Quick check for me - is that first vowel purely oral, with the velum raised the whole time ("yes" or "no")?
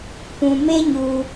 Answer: no